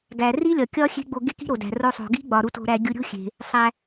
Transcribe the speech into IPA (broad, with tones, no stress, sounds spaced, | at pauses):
ɡ æ˩ r i˥ lʲ ɒ˩ kʲ ɒ˥ xʲ e̤˥ ɡ͡b o˧ ɡ e˥ k i̤˥ ɾ o˩ d æ̤˩ r o˧ sˤ o̤˩ ɡ i̤˥ ɡ͡b ɒ˩ ɾ u˧ t o̤˧ ɾ æ˧ ɡʲ u˧ ɾʲ o̤˥ xʲ e̤˩ | sˤ æ˩